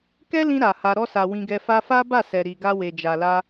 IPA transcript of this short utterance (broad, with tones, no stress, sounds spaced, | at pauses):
k ɛ˦ l ĩ˧ ɾ a˨ h a˧ ɾ ɔ˧ s a˨ w ĩ˧ ɡ ɛ˧ f a˧ f a˦ b a˦˨ s ɛ˨ ɾ i˨ ɡ a˧ w e˨ d͡ʒ a˨ l a˧